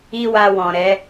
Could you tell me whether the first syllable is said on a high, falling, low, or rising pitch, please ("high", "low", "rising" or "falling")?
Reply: high